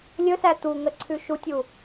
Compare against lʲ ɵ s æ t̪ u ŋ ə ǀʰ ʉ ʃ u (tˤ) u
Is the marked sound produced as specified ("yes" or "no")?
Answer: no